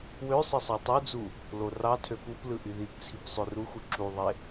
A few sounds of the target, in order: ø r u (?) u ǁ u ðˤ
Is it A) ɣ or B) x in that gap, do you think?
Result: B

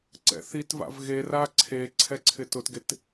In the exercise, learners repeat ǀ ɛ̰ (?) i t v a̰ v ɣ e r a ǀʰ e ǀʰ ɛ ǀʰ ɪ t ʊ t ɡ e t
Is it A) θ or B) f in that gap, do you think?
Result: A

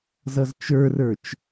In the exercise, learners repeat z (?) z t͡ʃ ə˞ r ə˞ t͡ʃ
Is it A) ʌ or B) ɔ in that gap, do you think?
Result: A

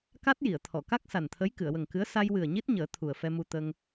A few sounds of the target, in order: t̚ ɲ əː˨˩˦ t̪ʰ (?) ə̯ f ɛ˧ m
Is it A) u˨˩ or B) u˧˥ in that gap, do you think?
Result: A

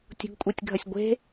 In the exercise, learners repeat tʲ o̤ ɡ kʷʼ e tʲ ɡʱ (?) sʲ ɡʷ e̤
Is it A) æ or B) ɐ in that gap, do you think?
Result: B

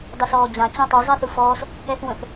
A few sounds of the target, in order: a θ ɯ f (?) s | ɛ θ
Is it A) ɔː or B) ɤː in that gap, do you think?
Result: A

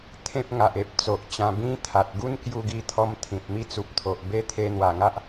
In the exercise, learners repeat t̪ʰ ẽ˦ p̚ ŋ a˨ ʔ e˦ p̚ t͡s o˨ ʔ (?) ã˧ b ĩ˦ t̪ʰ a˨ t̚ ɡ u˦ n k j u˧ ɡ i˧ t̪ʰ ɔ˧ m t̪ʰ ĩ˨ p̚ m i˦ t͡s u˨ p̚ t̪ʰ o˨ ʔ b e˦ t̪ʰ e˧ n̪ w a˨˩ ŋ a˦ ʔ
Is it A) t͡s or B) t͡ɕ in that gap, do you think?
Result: B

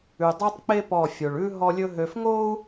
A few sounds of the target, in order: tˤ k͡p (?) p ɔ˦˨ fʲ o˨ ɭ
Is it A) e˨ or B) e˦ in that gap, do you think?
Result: B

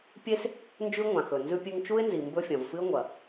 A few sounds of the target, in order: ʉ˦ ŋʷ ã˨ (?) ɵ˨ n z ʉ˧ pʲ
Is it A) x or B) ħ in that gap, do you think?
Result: A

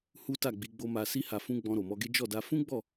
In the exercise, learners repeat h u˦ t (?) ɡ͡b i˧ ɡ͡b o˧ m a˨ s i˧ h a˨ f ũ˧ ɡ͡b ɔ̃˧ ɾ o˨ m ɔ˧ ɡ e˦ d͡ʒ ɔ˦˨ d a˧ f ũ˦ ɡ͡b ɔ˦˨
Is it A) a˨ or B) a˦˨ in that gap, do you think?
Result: B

